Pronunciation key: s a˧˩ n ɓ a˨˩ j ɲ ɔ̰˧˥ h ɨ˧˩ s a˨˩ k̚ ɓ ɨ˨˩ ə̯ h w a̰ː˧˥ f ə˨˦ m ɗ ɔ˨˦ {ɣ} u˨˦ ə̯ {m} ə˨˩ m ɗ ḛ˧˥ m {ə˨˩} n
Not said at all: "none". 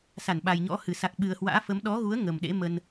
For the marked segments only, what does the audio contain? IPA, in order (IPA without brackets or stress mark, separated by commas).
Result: ɣ, ŋ, ə˧